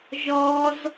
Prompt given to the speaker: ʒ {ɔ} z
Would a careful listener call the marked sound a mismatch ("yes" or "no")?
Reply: no